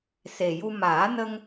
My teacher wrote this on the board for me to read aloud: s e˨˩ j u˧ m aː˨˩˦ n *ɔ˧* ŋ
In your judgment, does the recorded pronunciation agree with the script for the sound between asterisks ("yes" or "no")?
no